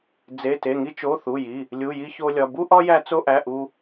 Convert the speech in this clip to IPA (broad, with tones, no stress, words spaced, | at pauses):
d͡ze˧˥˧te˧˥˧ ŋi˥t͡ʃo˧˥˧ θu˧˥˧ji˧˥˧ | lʲu˧˥˧ji˥ço˥lʲɒ˧˥˧ bu˥ʔɒ˥ jæ˥t͡so˥ʔæ˧˥˧ ʔu˥